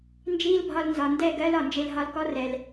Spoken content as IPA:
n d͡ʒ iː˦ l bʱ ɒ˧ l n z ɒ˨ n d ɛ˦˨ ɡ ɜ˦ l ɒ˨ n d͡ʒ e˧ l ɦ ɒ˧ l k ɔ˦ r ɛ˨ l

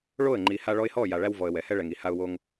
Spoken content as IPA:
ɭ o˦˨ ə̯ ŋ͡ǃ i˨ h a˧ ɭ ɔ˧ ɪ̯ h ɔ˦˨ j a˨ ɭ æ˦ w v ɔ˨ ə̯ w ɛ˨ h ɛ˦ ɭ ɛ˨ ŋ i˨ h a˦ ʊ̯ w o˦ ŋ

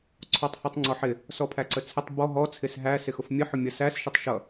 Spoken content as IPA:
ǀʰ ɔ tˤ h ɔ tˤ ŋ͡ǀ ɔ ħ ɪ | s ɔ pʰ æ ǀ ə t͡sʰ ə tˤ b ɔ ɦ ɔ t͡sʰ ɪ s ɦ æ s ɪ x ʊ f mʲ ə ħ ʊ mʲ ʌ s æ s ʃ ə tˤ ʃ ʌ

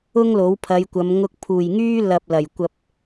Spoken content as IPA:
ʊ˥ ŋ l o˨˥ w pʰ ɐ˨˧ j kʷ ɐ˨˧ m ŋ ʊ˧ k̚ pʰ uː˨˩ j ŋ yː˥ l ɐ˨ p̚ l ɐ˨˩ j kʷ ɐ˨ p̚

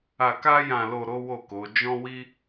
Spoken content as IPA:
a˧ k a˦ j ã˧ l o˧ ɾ o˦ w o˦˨ k o˨˦ d͡ʒ ɔ̃˦ w i˦

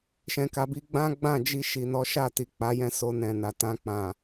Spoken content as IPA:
ʃ ɛ̃˨ k a˨ b i˧ ɡ͡b ã˦ ɡ͡b ã˦˨ d͡ʒ i˧ ʃ i˨ n ɔ˨˦ ʃ a˦˨ t i˨ k͡p a˨˦ j ɛ̃˦ s o˧ n ɛ̃˨ n a˨ t ã˧ k͡p ã˨

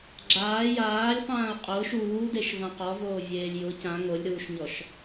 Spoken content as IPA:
ɡ͡ǁ aː j aː lʲ q ãː ʊ̯ qʼ ʊː ʃ uː d e ʃ v ã q ɔ v oː vʲ eː lʲ j ʊ c ã ŋ o lʲ ɾ uː ʃ ɲ ɔ ʃ

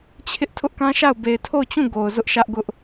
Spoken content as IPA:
t͡ɕʰ ɪ˦ ʔ tʰ ʊ˦ ʔ k ã˦ ʃ a˦˨ ʊ̯ b e˨ ɪ̯ tʰ o˦˨ ʊ̯ t͡ɕ ũ˦˨ ɡ o˨ ʊ̯ z ʊ˦ ʔ ʃ ä˦ ʔ ɡ ʊ˦ ʔ

